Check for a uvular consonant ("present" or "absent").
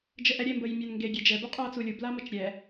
present